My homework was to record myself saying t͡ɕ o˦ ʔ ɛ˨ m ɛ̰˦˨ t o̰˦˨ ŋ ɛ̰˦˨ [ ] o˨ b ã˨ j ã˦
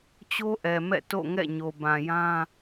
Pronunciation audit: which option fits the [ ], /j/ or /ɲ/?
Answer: ɲ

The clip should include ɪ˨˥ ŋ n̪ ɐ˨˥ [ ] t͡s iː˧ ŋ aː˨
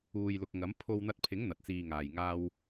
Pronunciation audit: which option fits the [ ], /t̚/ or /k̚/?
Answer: t̚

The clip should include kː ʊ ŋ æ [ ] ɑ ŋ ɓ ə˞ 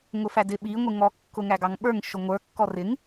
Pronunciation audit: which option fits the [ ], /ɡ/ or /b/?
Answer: ɡ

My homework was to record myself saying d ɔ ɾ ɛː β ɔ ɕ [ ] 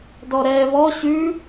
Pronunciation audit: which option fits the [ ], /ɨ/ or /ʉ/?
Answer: ʉ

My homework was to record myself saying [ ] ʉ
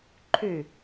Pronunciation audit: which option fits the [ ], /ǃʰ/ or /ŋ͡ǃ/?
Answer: ǃʰ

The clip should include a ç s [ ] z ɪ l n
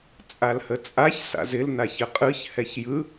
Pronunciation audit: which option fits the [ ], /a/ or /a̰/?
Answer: a̰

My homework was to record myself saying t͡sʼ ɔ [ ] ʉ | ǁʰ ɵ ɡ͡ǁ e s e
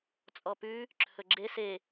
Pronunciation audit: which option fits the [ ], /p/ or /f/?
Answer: p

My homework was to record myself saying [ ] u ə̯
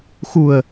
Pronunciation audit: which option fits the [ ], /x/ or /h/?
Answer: x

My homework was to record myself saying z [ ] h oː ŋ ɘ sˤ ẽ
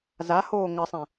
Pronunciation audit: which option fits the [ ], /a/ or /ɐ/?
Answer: a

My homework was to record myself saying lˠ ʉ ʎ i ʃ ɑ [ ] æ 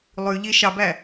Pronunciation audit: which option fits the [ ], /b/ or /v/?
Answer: b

